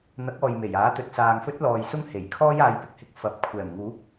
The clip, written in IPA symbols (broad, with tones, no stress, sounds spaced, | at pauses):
n̪ ɐ˨˥ k̚ ɔː˨ j m e˨˩ j aː˨˥ t̪ ɵ˨ t̚ s aː˨ ŋ f ɵ˥ t̚ l ɔː˨ j s ʊ˥ ŋ h e˨˩ j kʰ ɔː˥ j aː˨˧ j p ɪ˨˥ k̚ h ɪ˨ k̚ f ɐ˨˥ p̚ kʷʰ ɛː˨˩ m ŋ uː˨˥ p̚